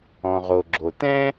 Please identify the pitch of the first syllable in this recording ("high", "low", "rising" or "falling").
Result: low